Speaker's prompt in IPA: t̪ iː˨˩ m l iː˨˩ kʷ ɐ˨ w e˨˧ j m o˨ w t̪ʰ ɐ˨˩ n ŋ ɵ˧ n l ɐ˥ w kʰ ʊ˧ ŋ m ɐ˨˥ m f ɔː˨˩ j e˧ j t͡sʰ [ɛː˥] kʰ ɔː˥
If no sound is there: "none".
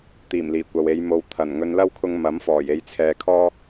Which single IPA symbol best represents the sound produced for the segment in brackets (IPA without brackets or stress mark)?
ɛː˨